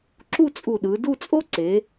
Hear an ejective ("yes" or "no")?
yes